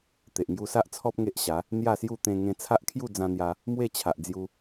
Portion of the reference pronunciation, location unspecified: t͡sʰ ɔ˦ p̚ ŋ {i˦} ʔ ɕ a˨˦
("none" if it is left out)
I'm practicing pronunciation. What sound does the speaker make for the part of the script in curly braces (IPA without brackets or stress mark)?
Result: e˦